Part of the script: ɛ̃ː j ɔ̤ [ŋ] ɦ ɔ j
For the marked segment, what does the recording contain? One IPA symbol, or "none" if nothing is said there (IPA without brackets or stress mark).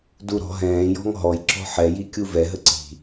ŋ